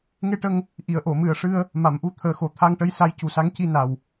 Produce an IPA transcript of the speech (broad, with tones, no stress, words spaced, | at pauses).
ŋe˧ʈə˧ŋ | ʔi˨˩˨ə̯ʔo˨˩˨mɨ˨˩ə̯ ʂɨ˧ə̯ | ma˨˩˨mʔu˧t̪ʰəː˨˩ xo˨˩ t̪ʰa˧ŋʈə˧˥j sa˧˥jcu˨˩˦sa˧˥ŋ ci˧na˨˩w